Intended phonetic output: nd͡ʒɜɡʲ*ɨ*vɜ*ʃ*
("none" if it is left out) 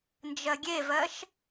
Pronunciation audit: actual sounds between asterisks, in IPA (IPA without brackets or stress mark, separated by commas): e, ʃ